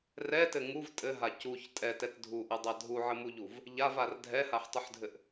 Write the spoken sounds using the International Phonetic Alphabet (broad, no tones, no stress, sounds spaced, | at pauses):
r ɛ t ɘ ŋ u v tʼ ɘ ɦ a c u ç tʼ ɛ t ɛ t dʱ u ʔ ɘ dˤ a dʱ u ʕ ɘ m u ʎ u v | ʎ a v a r dʱ ɛ h a ħ tˤ u ħ dʱ ɘ ʔ